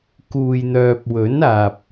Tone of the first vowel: low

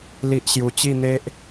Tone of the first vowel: high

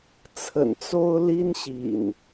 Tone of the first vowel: low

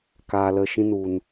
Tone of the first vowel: low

